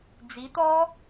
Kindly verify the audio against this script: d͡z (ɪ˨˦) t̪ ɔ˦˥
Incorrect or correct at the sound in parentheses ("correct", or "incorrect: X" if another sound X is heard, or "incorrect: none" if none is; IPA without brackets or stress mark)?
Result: incorrect: i˨˦